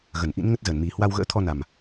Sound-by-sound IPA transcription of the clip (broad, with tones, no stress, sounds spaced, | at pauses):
ɣ ə˧˩ n ʔ ḭ˧˥ n ŋ ə˦˥ t̚ z əː˧˩ n m i˨˩ h w a˧ w ɣ ə̰ː˧˥ t̪ʰ ɔ˧ n a˨˩ m